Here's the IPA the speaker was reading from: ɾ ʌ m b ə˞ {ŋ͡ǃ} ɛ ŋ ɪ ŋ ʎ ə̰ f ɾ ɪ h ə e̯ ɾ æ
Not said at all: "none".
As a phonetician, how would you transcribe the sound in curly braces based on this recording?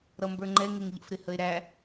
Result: ŋ͡ǃ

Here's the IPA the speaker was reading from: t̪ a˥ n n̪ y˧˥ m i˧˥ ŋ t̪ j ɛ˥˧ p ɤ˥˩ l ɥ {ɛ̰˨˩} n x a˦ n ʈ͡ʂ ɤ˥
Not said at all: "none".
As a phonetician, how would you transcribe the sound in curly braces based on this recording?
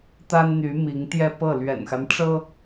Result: ɛ̰˨˩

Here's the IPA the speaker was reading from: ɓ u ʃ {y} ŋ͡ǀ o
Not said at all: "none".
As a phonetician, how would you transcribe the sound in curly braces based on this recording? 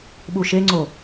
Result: e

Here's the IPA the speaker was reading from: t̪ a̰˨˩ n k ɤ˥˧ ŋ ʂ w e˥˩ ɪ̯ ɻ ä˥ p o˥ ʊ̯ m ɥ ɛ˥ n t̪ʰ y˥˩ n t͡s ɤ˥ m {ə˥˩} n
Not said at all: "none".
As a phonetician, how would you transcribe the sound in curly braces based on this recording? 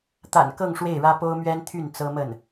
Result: ə˥˩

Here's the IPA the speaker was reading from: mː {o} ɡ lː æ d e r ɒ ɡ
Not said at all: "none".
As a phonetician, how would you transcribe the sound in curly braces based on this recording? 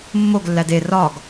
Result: o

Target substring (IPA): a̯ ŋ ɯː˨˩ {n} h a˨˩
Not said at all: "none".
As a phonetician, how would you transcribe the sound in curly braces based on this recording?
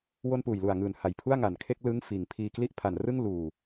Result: n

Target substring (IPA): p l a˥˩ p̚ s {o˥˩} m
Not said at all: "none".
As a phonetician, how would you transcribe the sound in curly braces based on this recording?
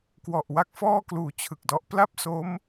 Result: o˦˥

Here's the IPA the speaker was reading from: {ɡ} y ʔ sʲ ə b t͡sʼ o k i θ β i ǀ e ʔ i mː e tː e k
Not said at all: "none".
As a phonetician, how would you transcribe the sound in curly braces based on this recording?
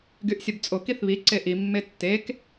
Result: ɡ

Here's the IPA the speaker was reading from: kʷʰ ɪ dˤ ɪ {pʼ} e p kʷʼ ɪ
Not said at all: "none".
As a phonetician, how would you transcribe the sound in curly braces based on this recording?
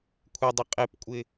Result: qʼ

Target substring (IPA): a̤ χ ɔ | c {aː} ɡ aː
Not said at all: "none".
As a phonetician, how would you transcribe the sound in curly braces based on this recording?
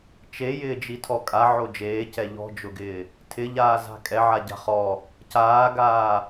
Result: aː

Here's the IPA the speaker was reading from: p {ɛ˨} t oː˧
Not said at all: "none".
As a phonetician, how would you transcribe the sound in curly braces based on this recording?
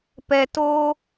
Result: ɛ˨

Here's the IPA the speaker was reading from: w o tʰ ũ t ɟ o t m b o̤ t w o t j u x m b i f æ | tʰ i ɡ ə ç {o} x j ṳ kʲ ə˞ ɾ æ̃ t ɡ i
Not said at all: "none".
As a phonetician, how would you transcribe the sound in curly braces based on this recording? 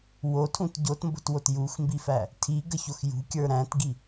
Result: o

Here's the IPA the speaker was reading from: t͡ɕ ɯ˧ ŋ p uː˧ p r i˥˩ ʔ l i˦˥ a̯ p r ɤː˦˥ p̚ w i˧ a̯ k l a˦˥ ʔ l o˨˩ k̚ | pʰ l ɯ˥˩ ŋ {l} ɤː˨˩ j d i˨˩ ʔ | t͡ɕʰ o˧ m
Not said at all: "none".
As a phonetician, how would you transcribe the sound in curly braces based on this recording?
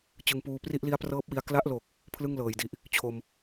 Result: l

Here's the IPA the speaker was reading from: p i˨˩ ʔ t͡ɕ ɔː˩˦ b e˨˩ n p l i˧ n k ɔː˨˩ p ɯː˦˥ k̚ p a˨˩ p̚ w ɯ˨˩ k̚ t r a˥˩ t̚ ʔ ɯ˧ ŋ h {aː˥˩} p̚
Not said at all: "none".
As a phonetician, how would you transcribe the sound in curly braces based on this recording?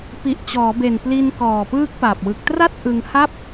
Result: a˥˩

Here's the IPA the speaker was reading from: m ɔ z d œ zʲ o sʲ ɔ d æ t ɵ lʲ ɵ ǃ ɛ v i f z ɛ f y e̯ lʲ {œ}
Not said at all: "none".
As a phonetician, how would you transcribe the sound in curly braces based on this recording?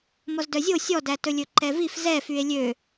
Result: ø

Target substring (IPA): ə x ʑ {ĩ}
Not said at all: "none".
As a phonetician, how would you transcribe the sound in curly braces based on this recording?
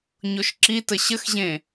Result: ẽ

